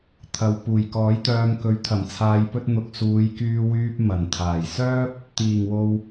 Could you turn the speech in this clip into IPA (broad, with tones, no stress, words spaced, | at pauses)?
t̪ʰɐ˨˧w puː˨˩jkɔː˨˥jt̪œː˧mkɵ˨˥ɥ t̪ʰɐ˨˩mt͡sʰaː˨˧jpɵ˧t̚n̪ʊ˨k̚ suː˨˧jkyː˧wyː˧p̚ mɐ˨˩nt̪ʰaː˨˩jsœː˥p̚ | t̪iː˨˩ŋwo˨w